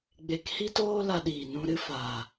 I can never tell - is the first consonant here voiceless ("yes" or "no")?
no